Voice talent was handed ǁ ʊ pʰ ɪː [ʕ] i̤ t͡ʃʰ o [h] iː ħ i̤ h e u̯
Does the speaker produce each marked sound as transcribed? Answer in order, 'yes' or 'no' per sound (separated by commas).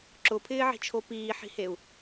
yes, no